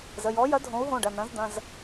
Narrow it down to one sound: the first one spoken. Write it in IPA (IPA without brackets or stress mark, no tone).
z